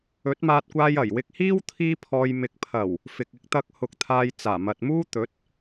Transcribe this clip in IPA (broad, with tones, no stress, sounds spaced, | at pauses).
ɵ˨˥ t̚ m aː˧ t̚ kʷ aː˧ j ɐ˨˩ j w ɪ˧ k̚ h iː˥ w t̪ʰ iː˧ pʰ ɔː˨ j m ɪ˨ k̚ pʰ ɐ˨˩ w | f ɪ˨ k̚ ɪ˨˥ k̚ t̪ ɐ˧ k̚ h ʊ˨ k̚ t̪ʰ aː˧ j t͡s aː˨˩ m ɐ˨ t̚ m uː˥ t̪ ɵ˨˥ t̚